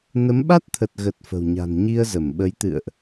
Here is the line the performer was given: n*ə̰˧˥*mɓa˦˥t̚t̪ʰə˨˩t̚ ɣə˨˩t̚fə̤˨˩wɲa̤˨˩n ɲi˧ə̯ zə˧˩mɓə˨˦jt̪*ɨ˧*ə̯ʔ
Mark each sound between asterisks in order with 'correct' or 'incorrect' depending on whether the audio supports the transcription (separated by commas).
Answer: incorrect, incorrect